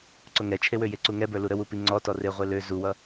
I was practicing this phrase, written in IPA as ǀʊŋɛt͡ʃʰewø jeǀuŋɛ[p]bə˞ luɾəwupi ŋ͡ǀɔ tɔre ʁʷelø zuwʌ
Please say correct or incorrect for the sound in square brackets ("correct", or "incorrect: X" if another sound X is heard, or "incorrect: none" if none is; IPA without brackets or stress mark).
incorrect: none